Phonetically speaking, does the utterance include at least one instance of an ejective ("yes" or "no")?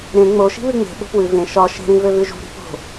no